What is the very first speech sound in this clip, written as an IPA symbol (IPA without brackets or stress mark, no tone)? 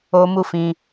o